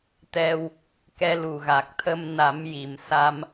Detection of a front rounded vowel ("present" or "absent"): absent